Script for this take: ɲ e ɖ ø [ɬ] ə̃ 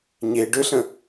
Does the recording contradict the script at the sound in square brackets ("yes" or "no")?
no